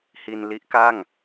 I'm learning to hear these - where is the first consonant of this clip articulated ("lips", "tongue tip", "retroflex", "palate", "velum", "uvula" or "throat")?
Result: throat